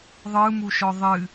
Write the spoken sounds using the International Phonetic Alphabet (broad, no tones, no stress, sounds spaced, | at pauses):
ðˤ ɯ m u ʃ ɔ ðˤ ɨ